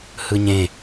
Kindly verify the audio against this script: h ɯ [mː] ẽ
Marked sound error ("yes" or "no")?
yes